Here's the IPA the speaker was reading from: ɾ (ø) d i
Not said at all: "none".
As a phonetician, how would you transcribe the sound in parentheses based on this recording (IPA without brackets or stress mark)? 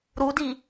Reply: u